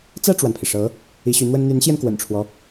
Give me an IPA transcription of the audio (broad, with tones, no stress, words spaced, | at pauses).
t͡sä˥˩ʈ͡ʂwa˩npʰi˩ʂɤ˧˥ | i˧˥ɕy˧˥n̪wə˥n n̪y˧˥nɕjɛ˧nkwə̰˨˩nʈ͡ʂʰwɔ˦